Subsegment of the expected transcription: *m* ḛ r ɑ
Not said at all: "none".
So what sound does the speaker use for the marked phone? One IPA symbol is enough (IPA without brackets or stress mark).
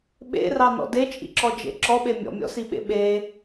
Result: ɓ